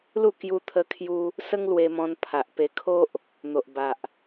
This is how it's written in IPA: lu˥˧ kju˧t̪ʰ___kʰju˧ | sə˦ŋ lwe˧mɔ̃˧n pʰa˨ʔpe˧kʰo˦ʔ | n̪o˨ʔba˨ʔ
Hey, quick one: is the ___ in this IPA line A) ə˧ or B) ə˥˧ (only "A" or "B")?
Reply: A